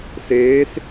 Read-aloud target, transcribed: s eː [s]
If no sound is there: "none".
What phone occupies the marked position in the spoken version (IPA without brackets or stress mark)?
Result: s